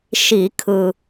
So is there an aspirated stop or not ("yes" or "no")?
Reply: yes